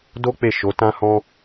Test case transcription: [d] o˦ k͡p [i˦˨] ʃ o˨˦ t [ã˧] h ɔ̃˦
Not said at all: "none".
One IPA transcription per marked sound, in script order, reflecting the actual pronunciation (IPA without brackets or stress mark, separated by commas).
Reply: d, e˦˨, ã˦